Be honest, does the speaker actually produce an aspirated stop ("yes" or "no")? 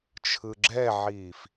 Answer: yes